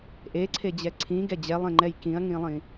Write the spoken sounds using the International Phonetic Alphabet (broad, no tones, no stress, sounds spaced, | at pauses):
ʔ e ǀʰ e d͡ʑ ɛ ǀʰ ĩ ɡ ɛ d͡ʑ ɛ lˠ ẽ ŋ͡ǃ ɛ j k ĩ ɐ̯ ŋ ĩ lˠ ĩ